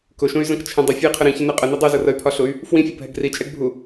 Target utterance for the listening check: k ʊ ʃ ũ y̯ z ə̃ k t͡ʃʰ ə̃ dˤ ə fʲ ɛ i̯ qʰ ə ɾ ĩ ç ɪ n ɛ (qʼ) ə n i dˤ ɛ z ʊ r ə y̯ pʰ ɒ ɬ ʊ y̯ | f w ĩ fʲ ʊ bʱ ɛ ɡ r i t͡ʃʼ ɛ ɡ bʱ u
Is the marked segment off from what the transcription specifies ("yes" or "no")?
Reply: no